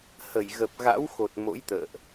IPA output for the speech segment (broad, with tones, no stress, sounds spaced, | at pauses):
h ə˧˩ j ɣ ə˨˩ p̚ ɣ a̰˧˥ w x o˨˩ t̚ m o̰˧˥ j t̪ ə̰ː˧˨ ʔ